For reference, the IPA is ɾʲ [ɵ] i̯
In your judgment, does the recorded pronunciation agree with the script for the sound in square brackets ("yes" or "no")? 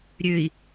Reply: no